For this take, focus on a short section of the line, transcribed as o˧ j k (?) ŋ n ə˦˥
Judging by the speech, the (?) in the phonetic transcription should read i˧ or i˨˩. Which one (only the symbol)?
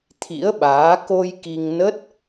i˧